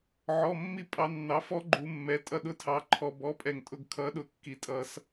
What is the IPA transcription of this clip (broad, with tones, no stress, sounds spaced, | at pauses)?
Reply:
ʕ ɔ˩˧˩ mː i˧ pʼ ɑ˩˧ nː ɑ˩˥ f ɔ˦˥ ɡ͡ǃ u˩˧ mː ɛ˩˧ tʼ ʌ˧ ɗ ʊ˧ tʰ ɑ˩˧ ǃʰ ɔ˩ b ɔ˩˥ pʼ ɛ˩ ŋ tʼ ʊ˧ ɡ kʰ ʌ˩˥ ɗ ʊ˩ kː i˩ tʼ ʌ˩˧ s